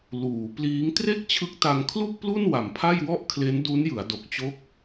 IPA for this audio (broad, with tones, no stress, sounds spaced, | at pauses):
l uː˩˦ p l iː˦˥ ŋ t r e˥˩ k̚ t͡ɕʰ ɯ˦˥ k̚ t a˧ ŋ kʰ l u˥˩ k̚ p l u˥˩ n w a˨˩ m pʰ a˥˩ j w ɔ˥˩ ʔ kʰ l e˦˥ n d u˦˥ n j ɯ˩˦ a̯ d o˨˩ k̚ t͡ɕ o˦˥ k̚